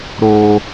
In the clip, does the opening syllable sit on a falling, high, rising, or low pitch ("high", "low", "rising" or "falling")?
high